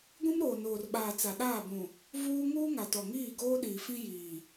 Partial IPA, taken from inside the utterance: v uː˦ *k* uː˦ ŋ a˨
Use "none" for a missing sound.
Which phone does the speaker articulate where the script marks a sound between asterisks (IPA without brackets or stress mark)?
ŋ